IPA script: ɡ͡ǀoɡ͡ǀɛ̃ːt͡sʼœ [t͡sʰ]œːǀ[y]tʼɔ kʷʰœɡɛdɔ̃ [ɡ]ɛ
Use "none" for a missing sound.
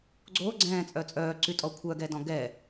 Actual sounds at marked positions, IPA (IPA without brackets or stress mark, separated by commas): t͡sʼ, y, ɡ